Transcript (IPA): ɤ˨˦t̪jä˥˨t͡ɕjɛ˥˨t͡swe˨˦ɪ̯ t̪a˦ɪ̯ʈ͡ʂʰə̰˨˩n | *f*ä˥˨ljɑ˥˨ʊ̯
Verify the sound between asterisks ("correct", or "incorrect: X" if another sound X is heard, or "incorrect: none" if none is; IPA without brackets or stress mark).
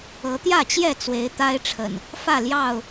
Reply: correct